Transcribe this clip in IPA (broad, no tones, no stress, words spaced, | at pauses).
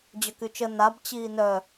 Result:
d͡ʑœkyt͡ʃə nab t͡ɕiːnœ